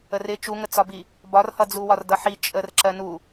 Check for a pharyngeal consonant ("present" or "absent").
present